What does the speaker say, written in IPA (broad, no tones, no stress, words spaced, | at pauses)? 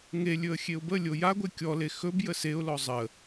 ŋe lʲɵə̯xʲeʊ̯bəlʲo jaɡʷe kʲɔle xɵb jəseʊ̯lɔ zˤə